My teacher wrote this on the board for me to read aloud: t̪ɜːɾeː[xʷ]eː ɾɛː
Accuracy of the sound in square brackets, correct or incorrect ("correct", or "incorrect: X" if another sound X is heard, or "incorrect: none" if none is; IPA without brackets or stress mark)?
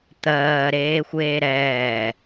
correct